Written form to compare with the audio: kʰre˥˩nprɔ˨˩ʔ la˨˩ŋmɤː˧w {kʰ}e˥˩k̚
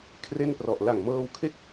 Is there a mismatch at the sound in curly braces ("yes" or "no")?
no